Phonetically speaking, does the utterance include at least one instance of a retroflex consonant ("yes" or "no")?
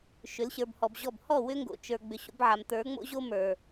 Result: no